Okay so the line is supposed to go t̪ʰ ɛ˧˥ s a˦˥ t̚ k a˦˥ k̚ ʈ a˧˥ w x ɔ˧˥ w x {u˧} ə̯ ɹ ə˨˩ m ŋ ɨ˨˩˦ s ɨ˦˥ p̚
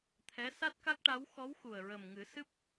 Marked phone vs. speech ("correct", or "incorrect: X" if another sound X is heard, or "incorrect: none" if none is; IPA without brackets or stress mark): incorrect: u˨˩